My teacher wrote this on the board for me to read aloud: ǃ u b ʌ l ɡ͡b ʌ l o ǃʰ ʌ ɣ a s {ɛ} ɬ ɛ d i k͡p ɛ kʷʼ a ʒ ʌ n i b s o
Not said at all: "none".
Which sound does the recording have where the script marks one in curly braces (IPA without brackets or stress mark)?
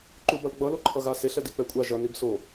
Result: e